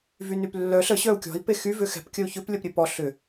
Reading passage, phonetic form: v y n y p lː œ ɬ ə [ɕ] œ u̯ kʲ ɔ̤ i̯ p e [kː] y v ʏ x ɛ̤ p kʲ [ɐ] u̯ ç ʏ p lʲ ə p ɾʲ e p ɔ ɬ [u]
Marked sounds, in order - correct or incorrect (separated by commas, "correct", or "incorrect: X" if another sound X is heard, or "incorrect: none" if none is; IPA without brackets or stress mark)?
correct, incorrect: x, incorrect: ə, incorrect: ʏ